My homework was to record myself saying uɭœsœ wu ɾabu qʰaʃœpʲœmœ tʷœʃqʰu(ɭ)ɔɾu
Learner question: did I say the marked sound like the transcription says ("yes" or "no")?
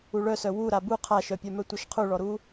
yes